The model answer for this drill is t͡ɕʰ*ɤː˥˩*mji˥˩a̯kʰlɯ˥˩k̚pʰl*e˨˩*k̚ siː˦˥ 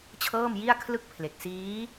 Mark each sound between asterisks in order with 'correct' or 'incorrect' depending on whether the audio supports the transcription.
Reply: correct, correct

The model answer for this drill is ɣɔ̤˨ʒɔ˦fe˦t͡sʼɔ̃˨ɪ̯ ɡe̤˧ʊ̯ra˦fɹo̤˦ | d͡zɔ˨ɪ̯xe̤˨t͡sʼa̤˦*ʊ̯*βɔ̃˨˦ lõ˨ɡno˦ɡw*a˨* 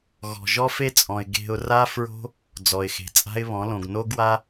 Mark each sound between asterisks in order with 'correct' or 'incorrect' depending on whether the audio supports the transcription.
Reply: incorrect: ɪ̯, incorrect: a˦

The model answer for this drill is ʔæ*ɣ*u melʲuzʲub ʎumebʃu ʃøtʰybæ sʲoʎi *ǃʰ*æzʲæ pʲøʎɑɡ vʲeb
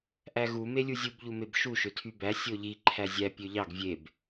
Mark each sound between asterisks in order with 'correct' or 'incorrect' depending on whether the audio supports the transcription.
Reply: correct, correct

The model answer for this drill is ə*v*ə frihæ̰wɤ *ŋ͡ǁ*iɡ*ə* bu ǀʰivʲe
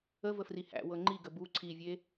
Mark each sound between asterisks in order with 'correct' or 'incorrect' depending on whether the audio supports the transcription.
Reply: correct, incorrect: ŋ͡ǃ, correct

